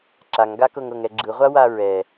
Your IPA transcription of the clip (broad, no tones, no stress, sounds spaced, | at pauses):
ǁ a ŋ ɡ a k ɤ ŋ ɤ ŋ ɛ ɡ͡ǁ ɯ ʁʷ a w a ɹ ɛ